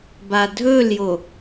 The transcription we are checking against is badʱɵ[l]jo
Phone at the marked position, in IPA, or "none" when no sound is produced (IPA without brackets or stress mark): l